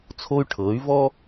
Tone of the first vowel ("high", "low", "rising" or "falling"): high